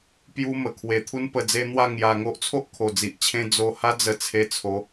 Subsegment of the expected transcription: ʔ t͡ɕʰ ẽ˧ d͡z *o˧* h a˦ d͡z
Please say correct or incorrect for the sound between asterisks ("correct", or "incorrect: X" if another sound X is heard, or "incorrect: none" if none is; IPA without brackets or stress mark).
correct